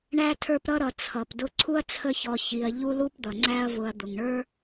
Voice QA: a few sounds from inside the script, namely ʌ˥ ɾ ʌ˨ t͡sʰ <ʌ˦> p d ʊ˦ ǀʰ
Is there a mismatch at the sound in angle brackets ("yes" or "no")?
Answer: yes